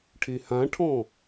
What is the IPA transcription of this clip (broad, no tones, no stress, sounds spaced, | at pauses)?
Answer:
ʈʰ e h ã ʈʰ ɔ̃